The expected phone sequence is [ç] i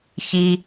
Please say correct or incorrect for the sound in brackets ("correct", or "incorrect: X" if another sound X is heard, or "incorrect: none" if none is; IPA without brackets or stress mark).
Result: correct